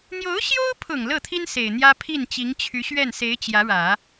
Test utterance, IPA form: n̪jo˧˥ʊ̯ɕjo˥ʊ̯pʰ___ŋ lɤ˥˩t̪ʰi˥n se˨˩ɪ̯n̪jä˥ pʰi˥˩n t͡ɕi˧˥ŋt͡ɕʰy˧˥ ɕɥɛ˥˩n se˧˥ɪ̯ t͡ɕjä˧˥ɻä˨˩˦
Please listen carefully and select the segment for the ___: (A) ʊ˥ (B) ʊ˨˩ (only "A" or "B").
B